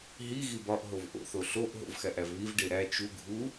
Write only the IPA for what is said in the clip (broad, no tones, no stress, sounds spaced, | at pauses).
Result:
ɦ i ɣ i b ɒ ʔ ɦ o v ʔ o̰ θ o ɬ o ʔ ɦ o̰ v x æ ʔ æ v β i v ɖ e ɾ æ t͡ʃ u ɡʱ u